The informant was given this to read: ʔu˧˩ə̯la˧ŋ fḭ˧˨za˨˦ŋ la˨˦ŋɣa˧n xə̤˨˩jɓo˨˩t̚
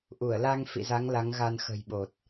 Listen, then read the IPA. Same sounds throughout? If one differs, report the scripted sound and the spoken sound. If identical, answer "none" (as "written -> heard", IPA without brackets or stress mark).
none